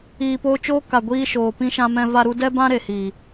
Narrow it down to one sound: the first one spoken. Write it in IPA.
iː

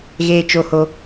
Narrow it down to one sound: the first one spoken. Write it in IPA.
ɣ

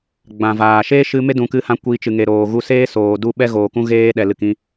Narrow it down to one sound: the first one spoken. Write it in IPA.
ɡ͡b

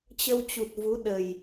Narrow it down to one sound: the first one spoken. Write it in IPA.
t͡ɕ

